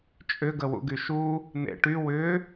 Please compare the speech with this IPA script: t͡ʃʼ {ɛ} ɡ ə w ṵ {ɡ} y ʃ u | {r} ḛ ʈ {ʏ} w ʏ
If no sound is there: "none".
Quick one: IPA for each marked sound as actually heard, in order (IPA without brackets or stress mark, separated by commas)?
ʏ, ɡ, n̪, y